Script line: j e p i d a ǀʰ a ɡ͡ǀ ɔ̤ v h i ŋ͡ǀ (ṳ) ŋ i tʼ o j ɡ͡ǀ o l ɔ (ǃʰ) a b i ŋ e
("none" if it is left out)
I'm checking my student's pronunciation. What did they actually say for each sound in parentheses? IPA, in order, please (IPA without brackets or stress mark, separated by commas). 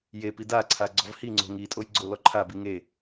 o̤, ǃʰ